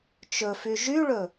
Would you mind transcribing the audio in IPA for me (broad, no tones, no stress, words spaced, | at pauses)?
t͡ʃɵfy ʒyɭɵ